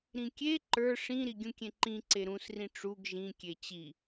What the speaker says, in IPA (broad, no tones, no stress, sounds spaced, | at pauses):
ɾ ĩ kʲ e ǃ ə˞ ʂ ĩ ɾ i ɡʲ ũ kʲ ẽ ǃ ĩ ǀ e ɾ ũ s r ĩ ʈ͡ʂ u ɡ ʒ ĩ kʲ e t͡ɕ i